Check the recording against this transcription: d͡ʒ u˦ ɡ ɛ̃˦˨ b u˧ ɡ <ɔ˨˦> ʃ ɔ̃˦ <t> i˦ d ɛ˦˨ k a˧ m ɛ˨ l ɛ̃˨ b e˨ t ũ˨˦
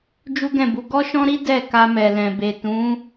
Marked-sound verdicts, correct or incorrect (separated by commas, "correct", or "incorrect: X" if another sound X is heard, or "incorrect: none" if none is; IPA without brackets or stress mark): incorrect: ɔ˦, incorrect: ɾ